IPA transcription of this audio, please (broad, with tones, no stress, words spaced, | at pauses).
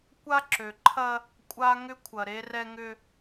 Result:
kʷa˦ǁø˨ǃʰɐ˦ | kʷʼa˦ŋʏ˦kʷʰɐ˨ ɾe˦rɛ˦ŋʏ˦